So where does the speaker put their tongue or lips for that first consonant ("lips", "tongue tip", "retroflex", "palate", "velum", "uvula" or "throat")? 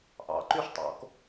throat